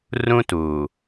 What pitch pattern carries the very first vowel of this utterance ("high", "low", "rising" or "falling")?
high